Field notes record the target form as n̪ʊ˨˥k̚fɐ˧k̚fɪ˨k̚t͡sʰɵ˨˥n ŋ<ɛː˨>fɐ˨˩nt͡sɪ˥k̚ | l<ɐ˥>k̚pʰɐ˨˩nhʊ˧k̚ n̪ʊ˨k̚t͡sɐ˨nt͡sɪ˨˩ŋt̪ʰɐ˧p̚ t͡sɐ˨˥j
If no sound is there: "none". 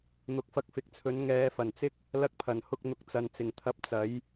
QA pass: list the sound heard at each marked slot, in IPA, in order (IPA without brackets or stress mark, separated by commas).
ɛː˨˧, ɐ˧